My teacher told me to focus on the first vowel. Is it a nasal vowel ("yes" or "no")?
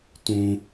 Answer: yes